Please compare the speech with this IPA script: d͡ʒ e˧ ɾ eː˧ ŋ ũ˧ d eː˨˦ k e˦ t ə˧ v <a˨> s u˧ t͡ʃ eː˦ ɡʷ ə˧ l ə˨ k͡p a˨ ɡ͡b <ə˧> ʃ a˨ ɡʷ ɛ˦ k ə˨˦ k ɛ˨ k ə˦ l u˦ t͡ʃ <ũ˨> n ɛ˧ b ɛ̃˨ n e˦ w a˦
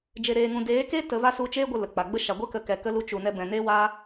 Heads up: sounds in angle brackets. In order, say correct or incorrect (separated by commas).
incorrect, incorrect, incorrect